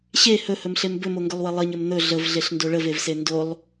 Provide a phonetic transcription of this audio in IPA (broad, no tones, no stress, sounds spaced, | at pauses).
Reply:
ɕ e h ɵ h ɵ m ɬ e m b ɵ m o ŋ ɡ ɵ lˠ w ə lˠ ə ɲ ə m n̪ ɵ ɮ ə v ɮ e ɬ n d o ɭ ə v e v s e n d o lˠ